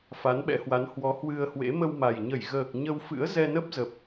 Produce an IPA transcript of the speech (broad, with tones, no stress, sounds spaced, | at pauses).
f a˨˦ n ɓ ɛ̰˧˥ h w a˨˦ n h w ɔ˨˦ h w ɨ˧ ə̯ h w ḛ˧˥ m ə˧ w m a˨˩ j ɲ ə˧˩ j ɣ əː˨˩ k̚ ɲ ə˧ w f ɨ̰˧˥ ə̯ z ɛ˧ n ə˦˥ p̚ z ə˨˩ p̚